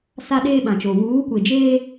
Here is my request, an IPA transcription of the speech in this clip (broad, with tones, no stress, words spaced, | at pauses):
sa˦ɗeː˦ɓã˨t͡ʃo˨ wuː˨˦kʷe˨d͡ʒeː˦